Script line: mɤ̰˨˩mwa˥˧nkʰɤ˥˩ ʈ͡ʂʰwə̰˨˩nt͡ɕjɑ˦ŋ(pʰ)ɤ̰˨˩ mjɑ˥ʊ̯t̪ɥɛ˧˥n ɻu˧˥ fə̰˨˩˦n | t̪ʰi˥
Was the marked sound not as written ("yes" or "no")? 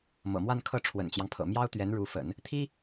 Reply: no